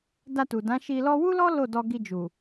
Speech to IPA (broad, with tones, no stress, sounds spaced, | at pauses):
d a˧ t u˨ d ã˨˦ ʃ i˧ l ɔ˦ w u˦ l ɔ˦ l o˦˨ d ɔ˧ ɡ i˧ d͡ʒ u˨